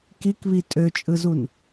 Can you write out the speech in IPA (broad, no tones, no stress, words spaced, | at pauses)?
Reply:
kikβi tʼøt͡ʃʼɯzun